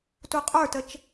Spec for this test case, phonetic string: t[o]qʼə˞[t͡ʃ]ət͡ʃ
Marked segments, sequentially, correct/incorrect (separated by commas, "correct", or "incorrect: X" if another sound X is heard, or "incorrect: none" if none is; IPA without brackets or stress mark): incorrect: u, incorrect: t